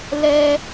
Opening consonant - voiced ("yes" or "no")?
yes